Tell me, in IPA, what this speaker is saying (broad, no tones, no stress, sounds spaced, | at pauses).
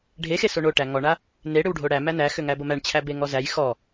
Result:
ɖʱ e x e s o ɳ o ʈ æ ŋ ɔ ɳ a | n e ɽ ʏ w ɖʱ o ɽ æ m æ n æ x ʏ ŋ æ b o m æ ɳ t͡ɕʰ æ b e ŋ ɔ z æ j x ɔ